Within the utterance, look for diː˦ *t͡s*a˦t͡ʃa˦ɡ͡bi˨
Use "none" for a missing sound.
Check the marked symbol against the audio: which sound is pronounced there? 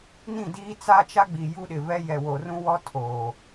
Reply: t͡s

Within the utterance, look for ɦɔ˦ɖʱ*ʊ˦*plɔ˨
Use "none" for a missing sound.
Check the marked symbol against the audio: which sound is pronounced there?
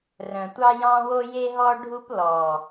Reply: u˦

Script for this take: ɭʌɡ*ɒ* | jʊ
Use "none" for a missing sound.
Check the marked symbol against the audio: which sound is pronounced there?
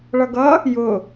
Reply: ʌ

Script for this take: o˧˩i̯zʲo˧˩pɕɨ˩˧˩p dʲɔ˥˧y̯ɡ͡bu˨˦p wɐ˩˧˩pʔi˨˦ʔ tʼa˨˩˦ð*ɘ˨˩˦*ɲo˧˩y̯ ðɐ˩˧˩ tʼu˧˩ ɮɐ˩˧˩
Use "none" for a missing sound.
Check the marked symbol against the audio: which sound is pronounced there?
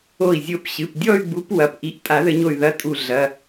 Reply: ɘ˨˩˦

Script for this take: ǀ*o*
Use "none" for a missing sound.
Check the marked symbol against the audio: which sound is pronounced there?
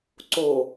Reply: o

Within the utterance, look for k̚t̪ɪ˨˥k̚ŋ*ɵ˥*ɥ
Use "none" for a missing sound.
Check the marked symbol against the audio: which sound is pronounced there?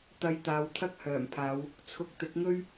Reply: ɵ˥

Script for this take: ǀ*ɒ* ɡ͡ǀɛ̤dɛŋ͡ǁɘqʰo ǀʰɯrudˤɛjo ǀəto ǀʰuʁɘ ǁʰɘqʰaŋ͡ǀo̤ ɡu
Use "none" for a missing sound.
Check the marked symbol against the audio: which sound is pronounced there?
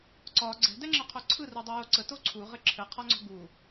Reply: ɒ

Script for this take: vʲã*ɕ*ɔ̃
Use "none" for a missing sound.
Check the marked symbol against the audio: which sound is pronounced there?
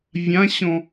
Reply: ɕ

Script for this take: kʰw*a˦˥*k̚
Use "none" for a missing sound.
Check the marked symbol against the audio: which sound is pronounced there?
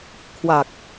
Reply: a˨˩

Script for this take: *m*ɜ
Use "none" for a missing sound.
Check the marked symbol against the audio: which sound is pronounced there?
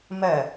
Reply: m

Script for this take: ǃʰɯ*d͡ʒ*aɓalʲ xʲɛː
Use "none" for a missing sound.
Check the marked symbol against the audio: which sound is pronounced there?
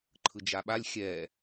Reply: d͡ʒ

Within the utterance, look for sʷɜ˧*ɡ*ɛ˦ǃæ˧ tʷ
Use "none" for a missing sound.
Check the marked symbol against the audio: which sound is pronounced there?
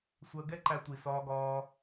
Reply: ɡ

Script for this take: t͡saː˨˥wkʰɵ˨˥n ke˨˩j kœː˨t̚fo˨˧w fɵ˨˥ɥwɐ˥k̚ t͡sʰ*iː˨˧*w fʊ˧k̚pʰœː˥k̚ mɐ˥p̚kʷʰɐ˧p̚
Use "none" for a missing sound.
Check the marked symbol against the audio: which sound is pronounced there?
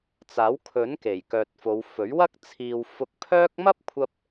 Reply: iː˨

